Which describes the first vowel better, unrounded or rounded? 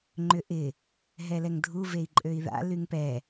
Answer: rounded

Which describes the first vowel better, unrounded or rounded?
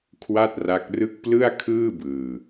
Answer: unrounded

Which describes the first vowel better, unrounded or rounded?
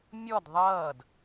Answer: rounded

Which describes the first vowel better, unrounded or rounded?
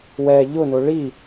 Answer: unrounded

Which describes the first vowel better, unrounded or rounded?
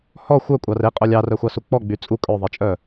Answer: rounded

